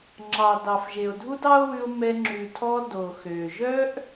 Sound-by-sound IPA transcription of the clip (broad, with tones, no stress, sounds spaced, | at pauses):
ŋ͡ǁ ɑ˨ d ɑ˨ f ʒ e˨ o̯ dʱ u˦ d ɑ˦ o̯ w ʉ˧ o̯ m ɛ˧ ŋ͡ǁ ʉ˨ tʰ ɔ˧ d o˨ x ø˨ ʒ œ˦ ʔ